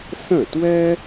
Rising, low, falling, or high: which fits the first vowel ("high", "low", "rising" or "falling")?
falling